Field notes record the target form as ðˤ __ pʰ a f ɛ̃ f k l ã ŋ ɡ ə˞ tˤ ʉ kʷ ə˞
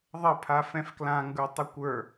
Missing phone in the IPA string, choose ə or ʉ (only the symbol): ə